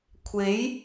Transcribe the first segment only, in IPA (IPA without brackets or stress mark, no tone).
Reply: kʷʰ